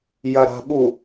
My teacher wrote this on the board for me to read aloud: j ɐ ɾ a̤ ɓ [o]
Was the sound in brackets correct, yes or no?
no